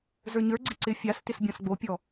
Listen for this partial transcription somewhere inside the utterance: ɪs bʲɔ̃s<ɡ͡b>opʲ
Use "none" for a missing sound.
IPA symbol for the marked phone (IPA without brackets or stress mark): ɡ͡b